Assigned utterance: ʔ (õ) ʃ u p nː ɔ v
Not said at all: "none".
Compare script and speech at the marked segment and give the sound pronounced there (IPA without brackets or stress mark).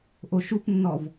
o